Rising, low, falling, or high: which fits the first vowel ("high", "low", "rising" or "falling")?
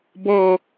falling